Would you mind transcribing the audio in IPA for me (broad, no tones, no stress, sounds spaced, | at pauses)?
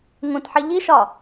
ŋ ũ t ħ i ʎ i ʃ ɒ